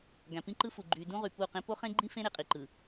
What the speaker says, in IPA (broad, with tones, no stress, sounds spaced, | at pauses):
ɡ æ̃˨ p ĩ˦ ǃ ɯ˦ f u˨ ɡ͡ǃ y˨ d ũ˦ ʁ y˨ p u˦˨ q ẽ˦ p o˦ χ ẽ˦ ɡ͡ǃ ĩ˦ f ẽ˦ ɾ e˨ qʼ i˨ ǃ ɯ˨